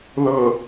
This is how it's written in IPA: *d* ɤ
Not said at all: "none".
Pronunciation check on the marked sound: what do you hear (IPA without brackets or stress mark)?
ð